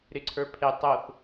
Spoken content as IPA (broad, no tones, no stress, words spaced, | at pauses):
ɾɪǀʰə˞pʰetˤ oθ